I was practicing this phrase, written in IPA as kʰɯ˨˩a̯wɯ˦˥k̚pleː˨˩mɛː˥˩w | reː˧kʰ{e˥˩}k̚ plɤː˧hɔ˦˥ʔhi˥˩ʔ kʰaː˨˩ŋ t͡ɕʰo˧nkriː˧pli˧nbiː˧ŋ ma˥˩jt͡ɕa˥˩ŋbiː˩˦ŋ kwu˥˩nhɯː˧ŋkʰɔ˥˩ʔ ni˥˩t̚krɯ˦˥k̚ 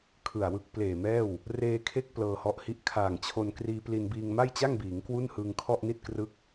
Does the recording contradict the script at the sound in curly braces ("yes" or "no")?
yes